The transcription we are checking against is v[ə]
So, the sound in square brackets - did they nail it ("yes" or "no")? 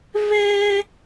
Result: no